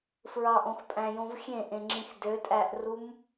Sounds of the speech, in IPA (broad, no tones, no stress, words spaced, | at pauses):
fɹɑʔõxpʼæ̃jõv xʲẽʔẽŋ͡ǁĩx døtʼæʔrum